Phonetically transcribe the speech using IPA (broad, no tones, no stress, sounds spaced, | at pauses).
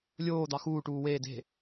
lʲ oː d̪ ɑ x uː ʈ uː w eː d e̤